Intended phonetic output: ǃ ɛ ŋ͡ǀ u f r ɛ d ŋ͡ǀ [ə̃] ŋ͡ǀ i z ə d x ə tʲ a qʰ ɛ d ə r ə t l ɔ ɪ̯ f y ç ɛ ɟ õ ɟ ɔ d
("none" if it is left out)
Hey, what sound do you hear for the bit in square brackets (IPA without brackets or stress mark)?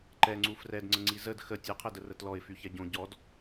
ə̃